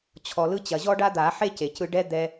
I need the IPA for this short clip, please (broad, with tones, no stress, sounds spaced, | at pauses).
t͡ɕʰ ɔ˩ l ɯ˧ t͡ɕ ɐ˩ ʑ ɔ˥ ɖ a˥ d̪ a˨˩˦ ħ e˥ c e˩ c ɯ˧ ɖ ɛ˥ d̪ ɛ˧